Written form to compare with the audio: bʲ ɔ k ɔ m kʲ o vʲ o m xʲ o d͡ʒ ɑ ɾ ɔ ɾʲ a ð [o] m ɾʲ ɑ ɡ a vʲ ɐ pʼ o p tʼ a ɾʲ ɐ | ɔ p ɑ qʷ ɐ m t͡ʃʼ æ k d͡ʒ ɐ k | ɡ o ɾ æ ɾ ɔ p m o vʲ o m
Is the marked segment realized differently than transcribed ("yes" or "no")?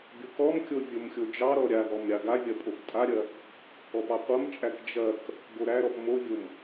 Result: yes